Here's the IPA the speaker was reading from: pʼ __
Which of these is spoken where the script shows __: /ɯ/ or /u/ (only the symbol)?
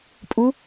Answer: u